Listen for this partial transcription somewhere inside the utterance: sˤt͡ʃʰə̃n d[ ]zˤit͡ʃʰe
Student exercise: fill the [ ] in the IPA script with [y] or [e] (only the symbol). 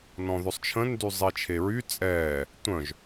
y